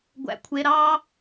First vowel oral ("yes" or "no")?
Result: yes